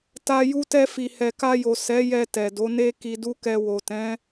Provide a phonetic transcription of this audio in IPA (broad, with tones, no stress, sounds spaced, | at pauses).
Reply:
t a˧ j u˧ t ɛ˧ f i˨ h ɛ˨ k a˧ j o˨ s ɛ˨˦ j ɛ˧ t ɛ˨ d o˨˦ n e˦ k i˧ d u˦ k ɛ˧ w o˨ t ɛ̃˨˦